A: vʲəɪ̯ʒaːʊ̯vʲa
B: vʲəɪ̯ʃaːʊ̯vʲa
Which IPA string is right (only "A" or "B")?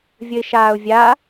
B